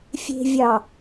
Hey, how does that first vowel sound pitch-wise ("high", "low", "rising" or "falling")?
low